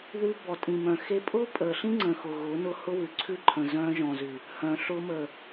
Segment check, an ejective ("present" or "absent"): present